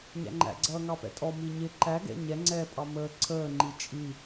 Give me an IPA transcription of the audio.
ɲ æ̰ ŋ͡ǃ æ̰ ɡ͡ǀ ʌː ŋ ɑ p ɛ̰ tʼ ɔ m i ɲ ɪ ǃ æ ɡ ɛ̰ ɲ ɛ ŋ͡ǀ ɛː pʼ ɑ m əː ǀʰ əː ŋ͡ǃ i t͡ʃʼ i

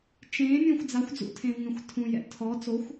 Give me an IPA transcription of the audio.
t͡ʃ ẽ mʲ õ xʷ d͡z a xʷ d͡z ṵ tʰ ẽ v ŋ ẽ xʷ tʰ ũ j ɛ̰ tʰ ɔ t͡s o xʷ

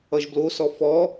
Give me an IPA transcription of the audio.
ʌ ʒ b l o s ɔ f ɔ

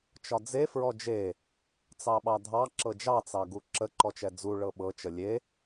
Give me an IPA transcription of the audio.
t͡ʃ ɒ d͡z e f ɹ ɔ d͡ʒ e | t͡s ɑ ɓ ɑ dʱ ɑ ǁ ɤ d͡ʒ ɑ t͡s ɑ ɡ u ǁ ə ǃ ɔ t͡ʃ ɛ d͡z u ɭ ɤ ɓ ɤ t͡ʃ ə lʲ e

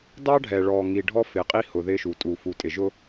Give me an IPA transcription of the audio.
d ɑ˦ ɖʱ ɛ˨ ɭ ɔ˨ ŋ i˨ ɖʱ ɔ˦ f ɪ˨ qʼ i˦ h ʊ˨ ð ɪ˦ ʃ u˨ tʼ u˨ f u˨ tʼ ɪ˨ ʒ ʊ˦

